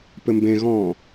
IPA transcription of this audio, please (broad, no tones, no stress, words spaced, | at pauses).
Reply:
pɘmbẽɣɔ̃ː